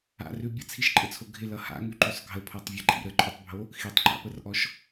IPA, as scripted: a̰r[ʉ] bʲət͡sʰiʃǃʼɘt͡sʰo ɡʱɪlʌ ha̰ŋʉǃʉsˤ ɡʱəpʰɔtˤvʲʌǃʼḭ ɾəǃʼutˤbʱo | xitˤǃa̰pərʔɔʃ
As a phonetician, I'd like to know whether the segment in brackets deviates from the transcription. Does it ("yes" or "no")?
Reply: no